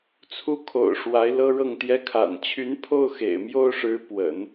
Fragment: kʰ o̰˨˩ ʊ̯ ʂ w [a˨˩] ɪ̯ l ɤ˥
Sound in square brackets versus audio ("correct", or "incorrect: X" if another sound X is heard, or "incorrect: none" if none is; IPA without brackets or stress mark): incorrect: a˧˥